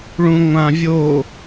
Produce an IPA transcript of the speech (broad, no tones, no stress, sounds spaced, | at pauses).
ɭ ũ ŋʷ ã vʲ o